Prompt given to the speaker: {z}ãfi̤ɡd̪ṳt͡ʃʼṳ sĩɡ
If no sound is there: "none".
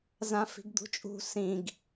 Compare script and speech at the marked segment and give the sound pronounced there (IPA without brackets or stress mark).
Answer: z